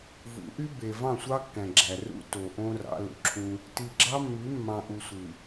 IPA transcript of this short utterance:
v ṵ˨˦ ʔ y˦ b e˨ v ɑ̃˦˨ sʷ ɑ˦ kː æ̃˨ ɡ͡ǁ æ˨ r ṵ˦ t o˨ ʔ õ˦ r ɑ̰˨˦ l ṵ˨ ǁʰ ũ˦ | t i˨ ɡ͡ǁ ɑ˦ mː y˨˦ mː ɑ̃˨ ʔ u˨ sʷ ɯ˨

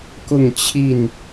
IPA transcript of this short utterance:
k ʊ˥˨ ŋ t͡ɕʰ i˥˨ n

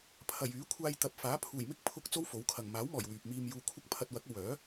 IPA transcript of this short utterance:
pʰ ɐ˨˩ j yː˨˥ kʷʰ aː˧ j t̪ ɐ˨ p̚ f aː˨˥ pʰ uː˨˩ j m ɪ˥ k̚ pʰ ʊ˧ k̚ t͡s o˥ w f o˨˥ w kʰ ɐ˨ ŋ m aː˨˥ w m ɔː˨˩ j w yː˨ p̚ m iː˧ m j uː˧ kʷʰ ɐ˥ k̚ pʰ ɐ˧ t̚ w ɐ˨˥ k̚ o˨ w œː˨˥

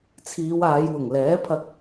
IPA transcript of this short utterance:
t͡sʰ iː˨˧ w aː˨˧ j w ʊ˨˩ ŋ l ɛː˨˥ pʰ ɐ˧ k̚

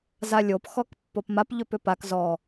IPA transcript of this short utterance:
z a lʲ o p x ɔ k pː o p m a p ʎ ʏ p ʏ p a k z ɔ

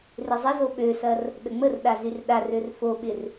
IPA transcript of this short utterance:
r ɪ zˤ ɪ z o ɓ ø s ɐ r | ɗ ə ŋ͡m ə r ɗ a z y r ɗ a r ø r f o ɓ ɪ r

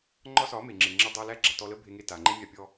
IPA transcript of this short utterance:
ŋ͡ǃ ɒ˦ s ɒ˨˦ m e˨ ŋ͡ǁ e˨ ŋ͡ǁ æ˧ dˤ æ˧ l æ˦ ɡ͡ǁ a˨ t ɔ˧ l ə˦ bʱ e˧ ŋ e˧ t a˨ ŋ͡ǃ e˦ mʲ a˧ pʲ ɔ˧

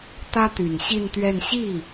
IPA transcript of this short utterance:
t̪ ä˥ t̪ y˨˩ n ɕ i˥˧ n t̪ ɥ ɛ˥˧ n ɕ i˥˩

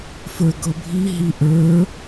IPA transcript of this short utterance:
f ə˞ ɡ ɤ bʱ i ɦ i ʔ ə˞

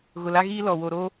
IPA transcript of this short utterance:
ɣ ʊ˨ l a˦ ɣ iː˦ l ɔ˨ w o˨ ɾ oː˦

